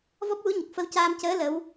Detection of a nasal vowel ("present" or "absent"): absent